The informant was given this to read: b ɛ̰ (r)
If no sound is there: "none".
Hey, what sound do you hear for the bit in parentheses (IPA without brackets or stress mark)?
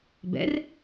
r